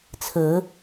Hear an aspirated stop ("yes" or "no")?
yes